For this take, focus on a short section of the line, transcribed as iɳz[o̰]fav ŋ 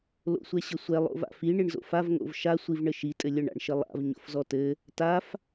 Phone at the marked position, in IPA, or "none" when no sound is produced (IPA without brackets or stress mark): o̰